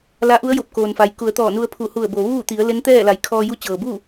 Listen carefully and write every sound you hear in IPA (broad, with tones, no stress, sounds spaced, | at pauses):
l a˧˥ ʔ u˧˥ ə̯ j o˧˩ p̚ k oː˩ n f a˩ j k u˩˧ ə̯ t̪ ɔː˧˩ n u˧ ə̯ pʰ u˧˩ h u˧˩ ə̯ b o˩ ʋ uː˥˨ t̪ i˩˧ ə̯ l e˧˥ n t̪ ɛː˥˨ l a˩˧ j kʰ ɔː˧ j u˧˥ t͡ɕ ɤː˩ b uː˥˨